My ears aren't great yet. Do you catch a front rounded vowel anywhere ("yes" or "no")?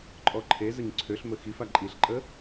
yes